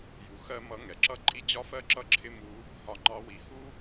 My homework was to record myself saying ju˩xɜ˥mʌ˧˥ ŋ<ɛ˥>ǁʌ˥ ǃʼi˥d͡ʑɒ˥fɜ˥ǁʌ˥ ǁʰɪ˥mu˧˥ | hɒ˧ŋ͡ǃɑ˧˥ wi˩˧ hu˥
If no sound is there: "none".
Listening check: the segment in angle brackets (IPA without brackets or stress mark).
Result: ɛ˩